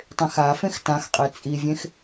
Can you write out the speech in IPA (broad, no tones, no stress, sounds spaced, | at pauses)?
tˤ ẽ x a f ẽ x t ã x qʼ e t͡sʼ i vʲ ẽ x